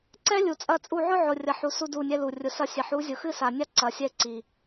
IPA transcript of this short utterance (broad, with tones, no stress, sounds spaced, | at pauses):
ǀ ɛ˦ lʲ u˨ t͡sʼ ɐ˦˨ t͡sʼ u˦˨ ʕ ʊ˦ ʕ ʊ˨ rʲ ɐ˨ ħ u˨ s u˦ d u˦˨ nʲ ɛ˦ l u˨ rʲ ʊ˨ s ɐ˦˨ sʲ ɛ˨ ħ u˨˦ zʲ ʊ˨ x ɨ˦ s a˨ nʲ a˦ ǀ ɐ˨ sʲ ɛ˦˨ ǀ i˨